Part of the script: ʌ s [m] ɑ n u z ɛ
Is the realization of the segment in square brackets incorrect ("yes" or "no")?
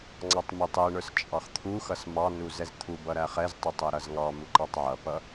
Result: no